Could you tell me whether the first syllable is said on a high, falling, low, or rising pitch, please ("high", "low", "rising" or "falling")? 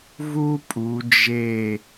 high